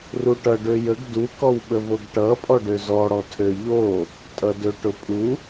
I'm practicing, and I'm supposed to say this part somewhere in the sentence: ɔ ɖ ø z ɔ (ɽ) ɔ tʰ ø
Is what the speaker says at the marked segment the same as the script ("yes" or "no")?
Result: yes